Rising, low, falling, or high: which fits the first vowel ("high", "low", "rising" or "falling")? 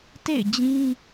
falling